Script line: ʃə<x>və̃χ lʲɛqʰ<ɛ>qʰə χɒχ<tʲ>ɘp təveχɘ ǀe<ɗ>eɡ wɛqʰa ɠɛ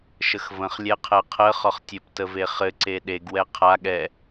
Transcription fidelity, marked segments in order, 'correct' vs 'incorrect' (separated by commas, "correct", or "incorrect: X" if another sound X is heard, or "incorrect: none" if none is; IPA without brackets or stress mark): correct, correct, correct, correct